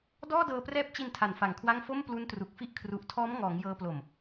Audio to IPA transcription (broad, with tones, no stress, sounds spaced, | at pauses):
d ɔː˥˩ d ɤː˧ p r ɛː˦˥ p̚ t͡ɕ i˧ n tʰ a˨˩ n f a˨˩ ŋ kʰ w a˥˩ ŋ f o˥˩ m p l u˦˥ n t r u˨˩ k̚ f i˥˩ ʔ kʰ r u˨˩ ʔ tʰ ɔː˦˥ m ŋ ɔː˩˦ ŋ j ɤː˧ p l o˨˩ m